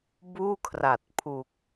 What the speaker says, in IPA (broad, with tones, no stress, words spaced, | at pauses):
buː˥˩kʰra˨˩t̚ pʰu˨˩k̚